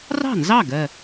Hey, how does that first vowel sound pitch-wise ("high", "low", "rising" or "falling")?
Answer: falling